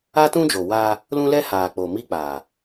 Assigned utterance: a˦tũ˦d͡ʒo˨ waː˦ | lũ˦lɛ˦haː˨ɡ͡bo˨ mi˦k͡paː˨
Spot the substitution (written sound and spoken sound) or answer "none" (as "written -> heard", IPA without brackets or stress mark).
ɡ͡b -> k͡p